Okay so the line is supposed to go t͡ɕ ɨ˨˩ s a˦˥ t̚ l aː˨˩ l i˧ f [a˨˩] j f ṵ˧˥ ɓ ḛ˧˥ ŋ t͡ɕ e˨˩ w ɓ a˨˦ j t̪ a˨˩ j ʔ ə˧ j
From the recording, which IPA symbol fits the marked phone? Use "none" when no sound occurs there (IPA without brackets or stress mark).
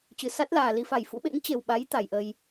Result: a˨˩